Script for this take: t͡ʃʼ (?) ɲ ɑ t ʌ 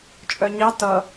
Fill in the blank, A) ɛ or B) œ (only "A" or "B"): B